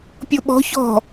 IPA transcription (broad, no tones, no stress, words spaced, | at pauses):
pʲoɓɔ̤ çɔ̤